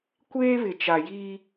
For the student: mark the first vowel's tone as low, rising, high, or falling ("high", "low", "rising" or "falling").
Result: high